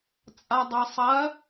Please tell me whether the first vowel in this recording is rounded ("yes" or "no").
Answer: no